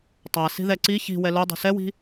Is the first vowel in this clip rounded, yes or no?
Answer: no